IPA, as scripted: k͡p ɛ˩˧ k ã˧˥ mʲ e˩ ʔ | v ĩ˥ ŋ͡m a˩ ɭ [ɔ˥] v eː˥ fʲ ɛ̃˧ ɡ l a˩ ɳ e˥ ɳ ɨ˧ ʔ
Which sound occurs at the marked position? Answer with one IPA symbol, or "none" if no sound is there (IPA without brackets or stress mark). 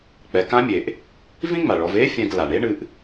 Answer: ɔ˩˧